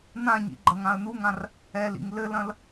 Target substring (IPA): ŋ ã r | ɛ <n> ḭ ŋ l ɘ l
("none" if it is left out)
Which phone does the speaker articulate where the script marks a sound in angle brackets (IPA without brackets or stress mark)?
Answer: l